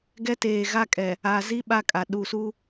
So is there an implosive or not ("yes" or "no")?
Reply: yes